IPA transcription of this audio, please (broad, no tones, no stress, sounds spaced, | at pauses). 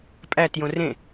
pʼ æ t j õ r ẽ